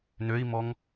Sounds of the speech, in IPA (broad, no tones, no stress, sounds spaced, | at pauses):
n ø i̯ m ɔ ŋ